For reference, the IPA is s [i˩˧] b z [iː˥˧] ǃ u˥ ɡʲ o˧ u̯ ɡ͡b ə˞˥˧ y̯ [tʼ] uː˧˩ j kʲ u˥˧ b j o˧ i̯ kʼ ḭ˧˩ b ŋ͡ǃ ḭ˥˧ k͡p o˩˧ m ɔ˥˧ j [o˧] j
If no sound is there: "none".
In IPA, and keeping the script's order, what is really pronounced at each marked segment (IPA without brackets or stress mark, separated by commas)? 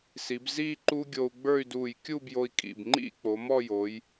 i˩˧, iː˥˧, d, o˩˧